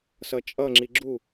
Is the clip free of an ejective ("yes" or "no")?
no